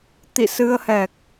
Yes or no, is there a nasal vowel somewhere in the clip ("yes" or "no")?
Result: no